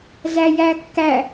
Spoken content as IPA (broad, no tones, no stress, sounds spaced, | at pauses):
z æ j æ kː æ